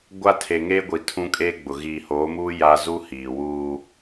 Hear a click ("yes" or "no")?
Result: no